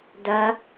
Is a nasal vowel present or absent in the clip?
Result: absent